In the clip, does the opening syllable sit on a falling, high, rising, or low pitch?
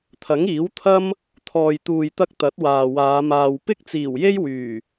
rising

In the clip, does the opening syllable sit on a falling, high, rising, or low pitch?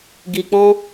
low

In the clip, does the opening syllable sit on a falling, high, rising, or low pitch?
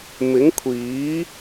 rising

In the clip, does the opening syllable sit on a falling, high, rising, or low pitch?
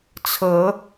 rising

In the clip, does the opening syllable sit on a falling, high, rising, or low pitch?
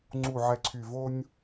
low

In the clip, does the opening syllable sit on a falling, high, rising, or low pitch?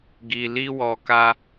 low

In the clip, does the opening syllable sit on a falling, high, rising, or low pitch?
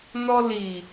high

